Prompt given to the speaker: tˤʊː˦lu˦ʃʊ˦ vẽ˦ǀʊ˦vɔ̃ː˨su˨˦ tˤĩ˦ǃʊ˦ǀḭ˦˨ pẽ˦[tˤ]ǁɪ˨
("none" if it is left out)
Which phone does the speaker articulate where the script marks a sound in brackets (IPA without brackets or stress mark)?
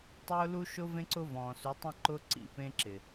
none